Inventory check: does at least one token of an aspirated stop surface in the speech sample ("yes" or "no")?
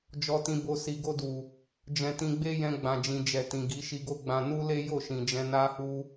no